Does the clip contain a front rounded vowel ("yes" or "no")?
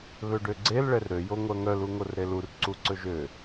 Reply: yes